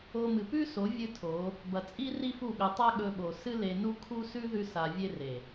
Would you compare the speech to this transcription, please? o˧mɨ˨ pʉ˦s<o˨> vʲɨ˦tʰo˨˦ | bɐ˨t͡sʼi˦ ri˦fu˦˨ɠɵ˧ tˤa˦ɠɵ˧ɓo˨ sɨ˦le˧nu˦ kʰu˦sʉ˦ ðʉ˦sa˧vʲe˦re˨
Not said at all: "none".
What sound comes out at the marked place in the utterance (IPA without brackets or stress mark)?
o˨˦